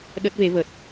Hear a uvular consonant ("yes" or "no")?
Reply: no